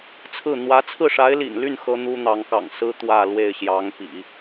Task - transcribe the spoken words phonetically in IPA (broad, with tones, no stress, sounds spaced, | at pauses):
t͡sʰ ɹ̩˥˩ n̪ w ä˧˥ t͡sʰ ɹ̩˥˩ ʂ a˧˥ ɪ̯ l ḭ˨˩ n l y˥˩ n x ɤ˥ n̪ u˥ n̪ ɑ˧˥ ŋ k ɑ̰˨˩ ŋ s ɹ̩˥ t̪ w ä˥˧ l w e˥˩ ɪ̯ ɕ j ɑ˧˥ ŋ p ḭ˨˩˦